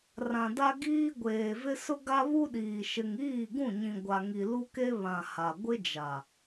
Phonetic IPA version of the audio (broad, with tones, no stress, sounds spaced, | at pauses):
r ã˨ d a˦ ɡ iː˦ ɡʷ eː˨ v ɪ˦ s ʊ˦ ɡ a˦ β u˦ ɗ iː˨ ʃ ɪ˨ ŋ iː˦˨ ɡ ũ˦˨ ɲ ĩ˨ ɡʷ a˨ ŋ i˨ l u˦ k e˦ β ã˨ h a˨ ɡʷ ɪ˦ d͡ʒ a˨